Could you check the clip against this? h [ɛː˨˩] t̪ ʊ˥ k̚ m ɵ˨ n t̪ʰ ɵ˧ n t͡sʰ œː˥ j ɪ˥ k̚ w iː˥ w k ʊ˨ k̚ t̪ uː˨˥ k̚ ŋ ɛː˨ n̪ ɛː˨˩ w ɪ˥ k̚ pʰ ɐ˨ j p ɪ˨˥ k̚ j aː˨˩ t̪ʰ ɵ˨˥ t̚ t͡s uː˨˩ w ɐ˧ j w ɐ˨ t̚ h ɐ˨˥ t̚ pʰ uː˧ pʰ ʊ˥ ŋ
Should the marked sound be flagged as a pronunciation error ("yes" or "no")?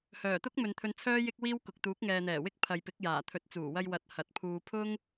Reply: yes